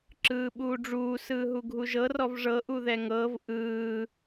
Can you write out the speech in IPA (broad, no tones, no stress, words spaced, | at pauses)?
ǁɯːɓuːɖ͡ʐuː sɯːɦuɡʱuʒɤ rɔvʐɤ ʔuðɛŋɤːv ʔɯː